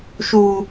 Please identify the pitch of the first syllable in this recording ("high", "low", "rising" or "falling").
high